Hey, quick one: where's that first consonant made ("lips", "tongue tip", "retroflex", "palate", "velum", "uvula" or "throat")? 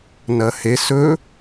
tongue tip